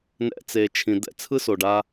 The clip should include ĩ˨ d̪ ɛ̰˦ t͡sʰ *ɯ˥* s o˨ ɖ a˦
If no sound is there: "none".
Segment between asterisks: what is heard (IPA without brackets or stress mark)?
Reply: ɯ˥